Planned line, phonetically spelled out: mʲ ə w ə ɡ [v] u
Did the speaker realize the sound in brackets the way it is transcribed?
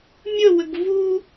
yes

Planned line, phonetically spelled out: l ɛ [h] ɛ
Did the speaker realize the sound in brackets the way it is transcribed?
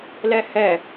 yes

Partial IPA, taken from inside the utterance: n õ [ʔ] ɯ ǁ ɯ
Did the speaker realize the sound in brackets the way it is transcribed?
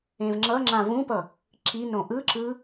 yes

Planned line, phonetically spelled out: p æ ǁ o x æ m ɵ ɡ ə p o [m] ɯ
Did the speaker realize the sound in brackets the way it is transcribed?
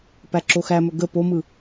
yes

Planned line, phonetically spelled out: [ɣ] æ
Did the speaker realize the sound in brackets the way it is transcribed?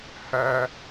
no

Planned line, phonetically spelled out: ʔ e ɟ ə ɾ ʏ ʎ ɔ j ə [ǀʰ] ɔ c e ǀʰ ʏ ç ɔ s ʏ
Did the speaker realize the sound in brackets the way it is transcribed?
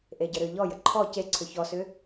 no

